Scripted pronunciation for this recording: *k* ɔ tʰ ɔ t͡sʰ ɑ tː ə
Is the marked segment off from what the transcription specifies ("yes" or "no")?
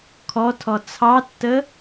yes